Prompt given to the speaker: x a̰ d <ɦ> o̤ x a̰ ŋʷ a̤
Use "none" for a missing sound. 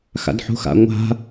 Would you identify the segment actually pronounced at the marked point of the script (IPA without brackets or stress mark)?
ħ